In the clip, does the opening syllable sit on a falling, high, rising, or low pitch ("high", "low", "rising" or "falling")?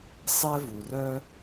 high